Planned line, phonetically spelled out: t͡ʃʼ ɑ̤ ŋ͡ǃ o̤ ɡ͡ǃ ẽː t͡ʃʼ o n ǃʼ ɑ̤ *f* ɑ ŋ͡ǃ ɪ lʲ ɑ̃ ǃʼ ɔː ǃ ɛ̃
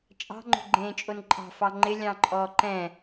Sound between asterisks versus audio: correct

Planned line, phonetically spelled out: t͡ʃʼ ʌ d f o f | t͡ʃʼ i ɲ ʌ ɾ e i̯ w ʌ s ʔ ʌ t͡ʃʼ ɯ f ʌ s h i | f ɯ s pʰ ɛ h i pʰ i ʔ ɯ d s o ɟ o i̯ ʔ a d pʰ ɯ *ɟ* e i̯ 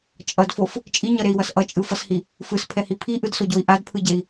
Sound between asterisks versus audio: correct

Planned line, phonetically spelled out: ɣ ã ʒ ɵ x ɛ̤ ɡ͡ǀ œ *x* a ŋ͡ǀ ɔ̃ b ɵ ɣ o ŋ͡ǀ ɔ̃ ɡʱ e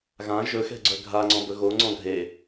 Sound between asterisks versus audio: incorrect: ɡʱ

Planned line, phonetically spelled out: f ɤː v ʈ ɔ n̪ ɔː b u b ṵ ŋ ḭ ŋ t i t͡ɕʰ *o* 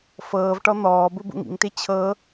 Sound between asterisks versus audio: incorrect: ɤ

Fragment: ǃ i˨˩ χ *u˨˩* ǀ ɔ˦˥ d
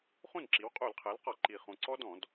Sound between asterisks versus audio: incorrect: ũ˨˩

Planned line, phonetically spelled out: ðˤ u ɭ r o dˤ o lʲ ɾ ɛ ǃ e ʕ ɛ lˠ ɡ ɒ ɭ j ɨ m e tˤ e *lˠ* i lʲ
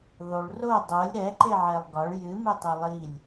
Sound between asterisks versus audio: correct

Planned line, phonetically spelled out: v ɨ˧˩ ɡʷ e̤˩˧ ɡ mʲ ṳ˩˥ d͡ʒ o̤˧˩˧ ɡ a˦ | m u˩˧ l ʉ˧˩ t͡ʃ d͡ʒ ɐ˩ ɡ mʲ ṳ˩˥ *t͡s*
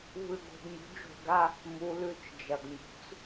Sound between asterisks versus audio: correct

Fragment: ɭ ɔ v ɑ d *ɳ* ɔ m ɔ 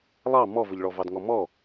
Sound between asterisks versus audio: incorrect: ŋ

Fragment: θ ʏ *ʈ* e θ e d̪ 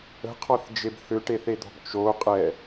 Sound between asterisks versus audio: correct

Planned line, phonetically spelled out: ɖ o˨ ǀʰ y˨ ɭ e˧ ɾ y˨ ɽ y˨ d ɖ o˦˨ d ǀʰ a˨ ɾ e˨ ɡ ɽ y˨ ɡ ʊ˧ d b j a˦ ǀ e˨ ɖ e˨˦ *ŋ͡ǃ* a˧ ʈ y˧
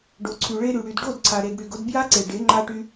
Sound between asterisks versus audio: correct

